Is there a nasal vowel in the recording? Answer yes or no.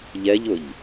no